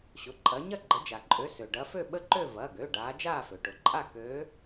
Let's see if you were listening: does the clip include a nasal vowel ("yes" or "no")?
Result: no